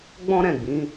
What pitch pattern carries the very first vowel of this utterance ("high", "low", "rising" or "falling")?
high